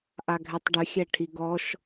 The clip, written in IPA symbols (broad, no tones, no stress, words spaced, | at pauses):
ʔaɡʱɛtˤɖʏ xʲɛʈʰiɡɔʃ